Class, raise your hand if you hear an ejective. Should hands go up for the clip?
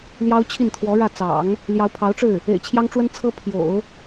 no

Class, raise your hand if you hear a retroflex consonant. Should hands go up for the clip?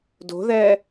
no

